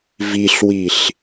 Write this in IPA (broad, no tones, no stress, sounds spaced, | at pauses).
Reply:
v i ɬ w i ɬ